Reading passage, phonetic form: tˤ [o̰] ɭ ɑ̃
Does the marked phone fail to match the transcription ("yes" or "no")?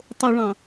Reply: yes